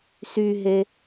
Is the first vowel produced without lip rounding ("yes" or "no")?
no